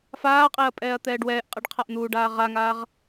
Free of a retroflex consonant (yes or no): no